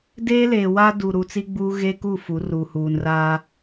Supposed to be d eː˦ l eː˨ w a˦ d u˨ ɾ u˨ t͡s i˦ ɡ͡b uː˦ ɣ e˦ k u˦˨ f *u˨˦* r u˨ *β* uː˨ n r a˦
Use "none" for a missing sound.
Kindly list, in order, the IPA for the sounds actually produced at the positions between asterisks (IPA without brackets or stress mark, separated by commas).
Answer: u˨˦, h